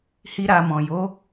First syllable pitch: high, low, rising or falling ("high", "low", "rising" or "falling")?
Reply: high